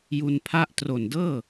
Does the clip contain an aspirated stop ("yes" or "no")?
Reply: yes